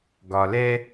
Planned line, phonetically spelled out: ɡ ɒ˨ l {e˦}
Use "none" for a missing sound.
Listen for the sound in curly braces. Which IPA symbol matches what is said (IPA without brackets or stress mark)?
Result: ɛ˦